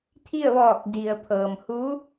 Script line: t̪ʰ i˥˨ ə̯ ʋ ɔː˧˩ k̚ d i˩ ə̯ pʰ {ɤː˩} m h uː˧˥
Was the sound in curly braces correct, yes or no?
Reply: yes